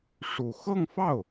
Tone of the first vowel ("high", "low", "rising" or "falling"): low